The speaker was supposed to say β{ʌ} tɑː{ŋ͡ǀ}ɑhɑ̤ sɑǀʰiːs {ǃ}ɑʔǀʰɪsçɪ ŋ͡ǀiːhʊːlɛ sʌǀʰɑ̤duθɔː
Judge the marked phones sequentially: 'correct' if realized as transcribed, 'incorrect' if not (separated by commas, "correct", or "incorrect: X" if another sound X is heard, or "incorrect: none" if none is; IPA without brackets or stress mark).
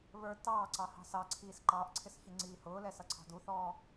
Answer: incorrect: ə˞, incorrect: ǀ, correct